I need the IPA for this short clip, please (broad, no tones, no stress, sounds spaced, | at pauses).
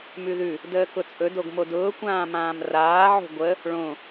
m ʉ ð ʉ | d əː k ʊ t͡sʼ ɵ d o ɡ m o d ʊː kʷ ãː m ãː m r aː ʕ o̤ ɡʷ ə | ɭ õ